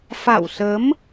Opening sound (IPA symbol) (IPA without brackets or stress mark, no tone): f